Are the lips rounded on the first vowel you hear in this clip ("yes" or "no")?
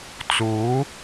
yes